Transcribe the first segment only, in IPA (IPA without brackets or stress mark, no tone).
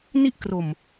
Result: n